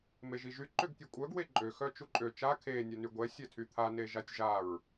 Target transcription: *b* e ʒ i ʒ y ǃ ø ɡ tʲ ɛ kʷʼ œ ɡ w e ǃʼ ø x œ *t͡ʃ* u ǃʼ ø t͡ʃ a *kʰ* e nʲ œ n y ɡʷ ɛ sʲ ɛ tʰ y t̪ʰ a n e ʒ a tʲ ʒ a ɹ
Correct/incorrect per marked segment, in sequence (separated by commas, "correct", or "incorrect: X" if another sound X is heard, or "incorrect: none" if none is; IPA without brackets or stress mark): incorrect: m, correct, correct